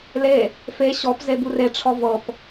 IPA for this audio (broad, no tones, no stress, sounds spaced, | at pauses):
l e | f e ɕ ɔ p z e b u r e ʈ͡ʂʰ ɔ v ɤ p